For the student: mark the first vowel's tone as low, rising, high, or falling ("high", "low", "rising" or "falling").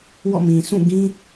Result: falling